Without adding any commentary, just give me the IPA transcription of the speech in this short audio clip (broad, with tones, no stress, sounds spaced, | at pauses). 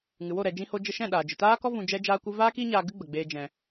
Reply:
ŋ ɨ˨ w o˦˨ ɾ ɛ˨ d͡ʒ ĩ˧ h o˧ d͡ʒ ə˧ ʃ ɛ̃˦˨ ɗ aː˨ d͡ʒ ɨ˨ t aː˦ k ɔ˦ v ũ˧ d͡ʒ ɛ˦ d͡ʒ aː˦ kʷ ɨ˦ v aː˦ k iː˦ ɲ aː˧ ɡ ɨ˦ ɡ͡b ə˨ ɡ͡b eː˧ d͡ʒ ɛ̃˨